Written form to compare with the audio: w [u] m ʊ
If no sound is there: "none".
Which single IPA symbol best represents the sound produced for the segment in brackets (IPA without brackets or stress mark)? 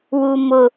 u